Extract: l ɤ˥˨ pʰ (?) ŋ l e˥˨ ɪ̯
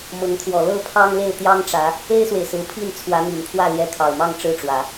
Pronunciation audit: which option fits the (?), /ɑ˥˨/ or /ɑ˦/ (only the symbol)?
ɑ˦